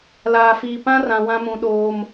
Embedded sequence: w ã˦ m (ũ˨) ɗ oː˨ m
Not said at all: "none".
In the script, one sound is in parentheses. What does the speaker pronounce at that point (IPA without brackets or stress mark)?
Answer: ũ˨